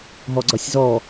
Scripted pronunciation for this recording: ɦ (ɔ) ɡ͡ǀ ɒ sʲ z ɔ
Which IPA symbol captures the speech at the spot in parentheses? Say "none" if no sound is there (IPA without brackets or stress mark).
ɔ